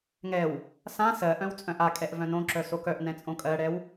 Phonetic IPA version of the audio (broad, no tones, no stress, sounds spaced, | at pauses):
ŋ ɛ w | s ã s ɜ ʔ œ̃ w t͡sʼ œ̃ ʔ a kʼ ɛ ʔ v œ̃ n õ ǁ œ s o k œ ʔ n ɛ̃ t͡sʼ õ kʼ ɜ ɽ ɛ w